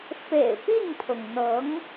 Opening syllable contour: low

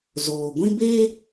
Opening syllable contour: low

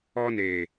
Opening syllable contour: high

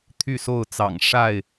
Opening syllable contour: falling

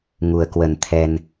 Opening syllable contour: low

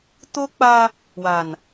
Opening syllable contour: high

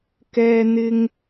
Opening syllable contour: high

